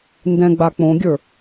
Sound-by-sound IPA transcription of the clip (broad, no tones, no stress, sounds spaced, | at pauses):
n d ɛ̃ ɡ͡b a k͡p õ ɡʲ ə˞